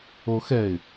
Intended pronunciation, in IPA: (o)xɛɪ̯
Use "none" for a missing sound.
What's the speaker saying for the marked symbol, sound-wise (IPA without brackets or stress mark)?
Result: o